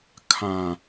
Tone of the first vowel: low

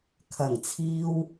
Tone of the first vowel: low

